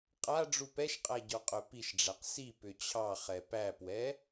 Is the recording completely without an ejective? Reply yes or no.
no